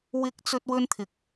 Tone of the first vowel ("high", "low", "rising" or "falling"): high